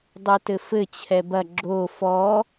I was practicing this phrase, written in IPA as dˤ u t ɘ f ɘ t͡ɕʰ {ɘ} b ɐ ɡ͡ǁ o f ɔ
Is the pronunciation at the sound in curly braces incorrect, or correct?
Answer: incorrect